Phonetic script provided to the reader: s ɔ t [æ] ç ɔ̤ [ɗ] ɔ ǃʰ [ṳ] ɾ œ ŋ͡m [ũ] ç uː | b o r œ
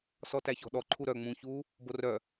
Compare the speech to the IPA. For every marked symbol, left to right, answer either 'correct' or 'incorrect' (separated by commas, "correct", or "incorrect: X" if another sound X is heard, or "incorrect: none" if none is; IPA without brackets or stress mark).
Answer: correct, correct, incorrect: u, correct